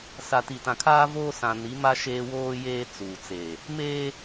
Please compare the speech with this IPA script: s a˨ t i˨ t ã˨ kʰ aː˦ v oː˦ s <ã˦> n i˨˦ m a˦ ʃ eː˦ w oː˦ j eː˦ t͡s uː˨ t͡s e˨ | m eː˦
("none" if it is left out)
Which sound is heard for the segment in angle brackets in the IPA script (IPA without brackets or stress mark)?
ã˨